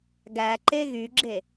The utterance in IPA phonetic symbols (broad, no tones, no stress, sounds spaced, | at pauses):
ɡ æ ǃ e ɣ y ɡ͡ǁ e